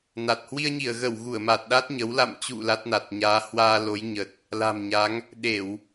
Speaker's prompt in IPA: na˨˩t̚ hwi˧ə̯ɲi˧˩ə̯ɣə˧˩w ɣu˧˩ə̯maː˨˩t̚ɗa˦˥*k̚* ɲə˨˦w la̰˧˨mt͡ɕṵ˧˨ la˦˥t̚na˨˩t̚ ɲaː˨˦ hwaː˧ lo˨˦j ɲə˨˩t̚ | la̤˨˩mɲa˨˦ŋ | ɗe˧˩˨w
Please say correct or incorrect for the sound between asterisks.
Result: incorrect